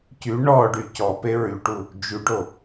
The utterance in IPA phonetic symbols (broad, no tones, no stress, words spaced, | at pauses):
cy ɳɔɖy cɔpe ɹyʈu | d͡ʒyɖo